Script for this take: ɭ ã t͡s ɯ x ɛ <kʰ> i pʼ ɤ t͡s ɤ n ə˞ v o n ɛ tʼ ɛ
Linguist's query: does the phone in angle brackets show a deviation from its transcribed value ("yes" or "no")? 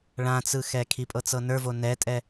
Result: no